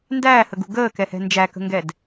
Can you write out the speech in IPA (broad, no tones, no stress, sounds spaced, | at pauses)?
n d æː h ə ɡ ṳ ɡ əː k ɛ h ɛ̤ n d͡ʒ æ k ə̤ ŋ ɡ ɛ d